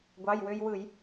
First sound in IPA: ɡʷ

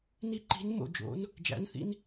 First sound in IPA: n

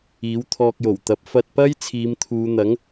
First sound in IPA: iː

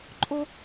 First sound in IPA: ǃʼ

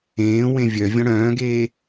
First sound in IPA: ẽː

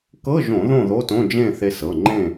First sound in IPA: k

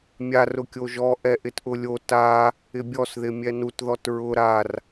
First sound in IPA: mʲ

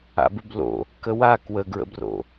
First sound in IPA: a̰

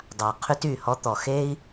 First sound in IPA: dˤ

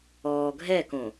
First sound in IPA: ɔː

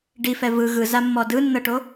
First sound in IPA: ɖ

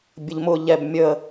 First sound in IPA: bʲ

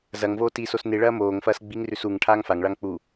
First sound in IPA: z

